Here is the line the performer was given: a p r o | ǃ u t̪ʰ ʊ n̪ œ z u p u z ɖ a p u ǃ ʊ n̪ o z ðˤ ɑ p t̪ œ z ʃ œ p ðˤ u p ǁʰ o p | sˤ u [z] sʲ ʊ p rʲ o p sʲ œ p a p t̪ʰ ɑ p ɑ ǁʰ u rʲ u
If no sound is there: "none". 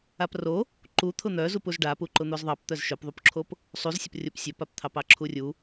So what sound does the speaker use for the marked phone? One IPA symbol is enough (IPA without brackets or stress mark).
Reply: z